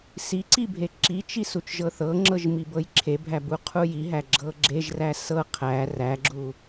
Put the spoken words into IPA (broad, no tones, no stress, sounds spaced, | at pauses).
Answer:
s i ǀ i bʱ e ǁ i t͡ʃ i s u t͡ʃ ʒ ɤ θ ɤ ŋ͡ǁ ɤ ʒ m i b ɤ j ǁʰ e bʱ æ b u qʰ u j i ɦ æ ɡ͡ǁ ɤ ɡ͡ǁ e ʒ r æ s ɤ qʰ æ r æ ɡ͡ǁ u